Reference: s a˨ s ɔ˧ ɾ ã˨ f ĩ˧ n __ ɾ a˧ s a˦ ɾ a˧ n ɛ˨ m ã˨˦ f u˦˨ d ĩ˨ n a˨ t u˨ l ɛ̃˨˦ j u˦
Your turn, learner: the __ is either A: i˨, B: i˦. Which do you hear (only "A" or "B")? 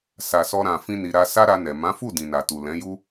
A